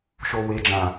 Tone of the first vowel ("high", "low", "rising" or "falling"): low